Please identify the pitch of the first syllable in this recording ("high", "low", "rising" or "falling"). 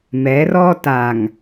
rising